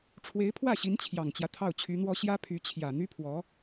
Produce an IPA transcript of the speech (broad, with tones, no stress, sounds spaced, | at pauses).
ʈ͡ʂʰ w e˧˥ ɪ̯ pʰ w ä˥˩ ɕ i˧˥ n t͡ɕʰ j ɑ˨˩ ŋ t͡ɕ j ä˦ t̪ʰ ɑ˥˩ ʊ̯ t͡ɕʰ y˧˥ n̪ w ɔ˥ ɕ j ä˥ pʰ y˧˥ t͡ɕʰ j ä˨˩ n̪ y˥ pʰ w ɔ˧˥